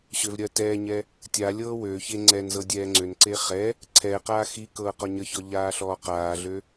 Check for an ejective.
absent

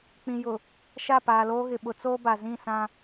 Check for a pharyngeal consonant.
absent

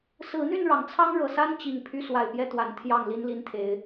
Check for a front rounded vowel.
present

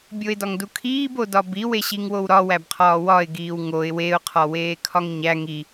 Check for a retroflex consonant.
absent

